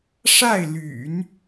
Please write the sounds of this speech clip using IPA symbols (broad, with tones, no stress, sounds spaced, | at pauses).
ʂ a˥˩ ɪ̯ l y̰˨˩˦ n